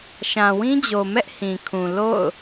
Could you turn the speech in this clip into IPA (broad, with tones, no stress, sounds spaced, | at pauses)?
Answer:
ʃ ã˨ w ĩ˦ d͡ʑ o˨ m ɛ˦ ʔ h ĩ˨ kʰ ũ˨ l o̰˦˨ ʊ̯